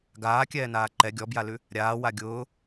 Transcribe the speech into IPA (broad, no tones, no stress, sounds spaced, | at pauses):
ɡ aː kʲ ɛː n aː ǃ ɛ ɡʲ ɔ b j a l ʉ | ɾʲ aː w a ɡʲ ʊː